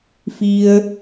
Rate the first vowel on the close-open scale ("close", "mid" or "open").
close